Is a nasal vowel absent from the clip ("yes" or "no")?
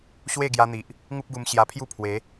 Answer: yes